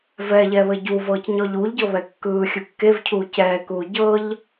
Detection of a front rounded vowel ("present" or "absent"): absent